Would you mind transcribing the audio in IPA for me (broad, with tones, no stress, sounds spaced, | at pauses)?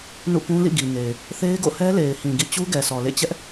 n ṵ˦˨ k ũ˦ l ḭ˦˨ ɡ i˨ ŋ e˨ ɪ̯ | θ e˦ ɪ̯ ɡ o̰˦˨ h ɛ˦ l e˨ ɪ̯ h ĩ˨ ɡ ḭ˦˨ t͡ɕ u˦ ɡ ɛ˨ sʰ ɔ˨ l ḛ˦˨ t͡ɕ ɛ˦ ʔ